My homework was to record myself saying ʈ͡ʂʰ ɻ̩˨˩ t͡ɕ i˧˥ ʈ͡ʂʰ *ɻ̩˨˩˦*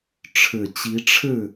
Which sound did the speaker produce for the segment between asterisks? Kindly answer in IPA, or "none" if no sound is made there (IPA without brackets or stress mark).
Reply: ɻ̩˥˩